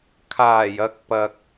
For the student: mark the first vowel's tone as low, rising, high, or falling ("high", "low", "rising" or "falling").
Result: low